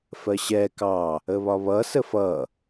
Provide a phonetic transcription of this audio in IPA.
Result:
f ɜ ɕ ɛ k ɑ | ə β ɒ β ʌ s ə f ʌ

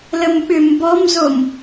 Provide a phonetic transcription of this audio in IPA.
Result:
l ə m ɓ ʏ m b ɔ m z o m

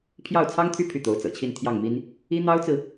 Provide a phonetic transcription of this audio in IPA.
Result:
pʰ j ɑ˥˩ ʊ̯ t͡sʰ ɑ˥ ŋ t̪ʰ y˥˧ pʰ y˥˩ t̪ o˧˥ ʊ̯ t͡s ɤ̰˨˩ t͡ɕʰ i˥˧ n t̪ʰ j ɑ˥˩ ŋ m i˥ n | i˥ n̪ ɑ˥ ʊ̯ t͡s ɹ̩˨

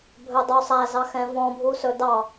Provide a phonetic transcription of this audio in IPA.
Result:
bʱ ɵ dˤ o sˤ æ z ɑ x ɛ̃ v ɔ̃ bʱ u s ɵ d ɑ

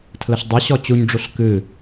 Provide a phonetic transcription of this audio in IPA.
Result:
tʰ l ə ɬ dˤ ɨ ɕ ɔ t͡ɕ u ɲ ɖ͡ʐ u ɬ k ɨ

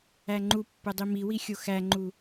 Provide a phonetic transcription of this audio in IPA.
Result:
æ ŋ͡ǃ u pː ɘ dˤ i m i w i xʲ o x æ ŋ͡ǃ u

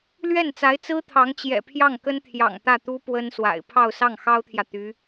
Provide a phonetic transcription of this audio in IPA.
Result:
l ɥ ɛ˥˩ n t͡s a˧˥ ɪ̯ t͡s ɹ̩˥ t̪ʰ ɑ˧˥ ŋ t͡ɕ j ɛ̰˨˩ pʰ j ɑ˥˩ ŋ k ə˥ n t̪ʰ j ɑ̰˨˩ ŋ t̪ ä˥˩ t̪ u˥ p w ə˥ n s w a̰˨˩ ɪ̯ pʰ ɑ˥˧ ʊ̯ s ɑ˥˩ ŋ x ɑ˥ ʊ̯ t̪ʰ j ä˨ t̪ y˧˥

